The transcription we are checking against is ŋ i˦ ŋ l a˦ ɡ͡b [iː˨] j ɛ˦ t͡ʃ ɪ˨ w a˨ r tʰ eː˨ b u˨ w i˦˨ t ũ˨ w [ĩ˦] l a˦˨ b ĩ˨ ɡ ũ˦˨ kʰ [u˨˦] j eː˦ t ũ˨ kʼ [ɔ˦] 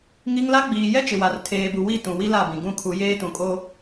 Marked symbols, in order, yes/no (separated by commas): yes, no, yes, no